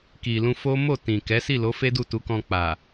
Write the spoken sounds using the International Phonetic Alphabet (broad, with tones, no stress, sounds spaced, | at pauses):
k i˨ l ũ˧ f o˦ m o˦˨ t ĩ˨ k ɛ˨˦ s i˦˨ l o˨˦ f e˦ d u˦˨ t u˨˦ k ɔ̃˧ k͡p a˨